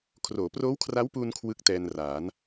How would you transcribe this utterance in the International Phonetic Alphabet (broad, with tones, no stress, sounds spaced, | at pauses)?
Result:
kʰ r oː˩˦ p r oː˦˥ w kʰ r a˦˥ w p uː˧ n kʰ w ɯ˦˥ k̚ t ɛː˧ n r aː˩˦ n